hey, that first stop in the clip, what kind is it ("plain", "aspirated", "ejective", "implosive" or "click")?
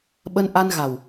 implosive